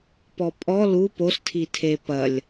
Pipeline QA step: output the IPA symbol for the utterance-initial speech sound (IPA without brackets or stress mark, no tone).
p